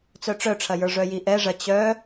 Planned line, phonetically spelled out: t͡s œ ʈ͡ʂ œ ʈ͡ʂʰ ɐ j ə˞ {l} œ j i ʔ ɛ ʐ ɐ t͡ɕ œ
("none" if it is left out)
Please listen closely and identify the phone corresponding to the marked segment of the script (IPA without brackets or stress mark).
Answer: ʐ